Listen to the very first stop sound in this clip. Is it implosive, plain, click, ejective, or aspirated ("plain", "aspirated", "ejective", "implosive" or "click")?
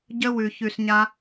plain